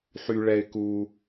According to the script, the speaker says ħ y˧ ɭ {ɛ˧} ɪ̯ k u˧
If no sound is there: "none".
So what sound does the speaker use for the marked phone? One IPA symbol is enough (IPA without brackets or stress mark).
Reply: ɛ˧